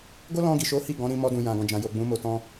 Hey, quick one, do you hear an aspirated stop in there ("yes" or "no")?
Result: no